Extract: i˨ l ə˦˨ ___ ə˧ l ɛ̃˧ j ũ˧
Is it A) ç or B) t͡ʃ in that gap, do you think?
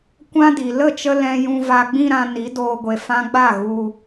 B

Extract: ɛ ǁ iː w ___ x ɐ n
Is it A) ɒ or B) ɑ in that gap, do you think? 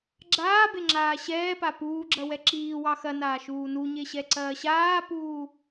B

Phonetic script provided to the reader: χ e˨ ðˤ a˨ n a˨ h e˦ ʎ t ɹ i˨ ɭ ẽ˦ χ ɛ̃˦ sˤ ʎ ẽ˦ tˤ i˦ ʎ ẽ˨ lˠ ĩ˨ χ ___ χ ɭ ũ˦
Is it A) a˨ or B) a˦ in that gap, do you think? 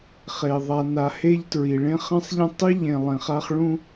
B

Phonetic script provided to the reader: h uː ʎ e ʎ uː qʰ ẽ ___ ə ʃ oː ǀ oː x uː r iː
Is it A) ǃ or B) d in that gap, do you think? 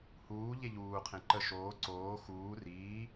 A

